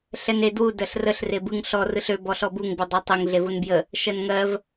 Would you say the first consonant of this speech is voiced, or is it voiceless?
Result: voiceless